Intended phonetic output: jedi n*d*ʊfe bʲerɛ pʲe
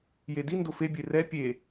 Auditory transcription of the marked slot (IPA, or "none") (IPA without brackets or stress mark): d